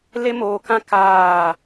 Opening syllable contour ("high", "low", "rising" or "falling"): high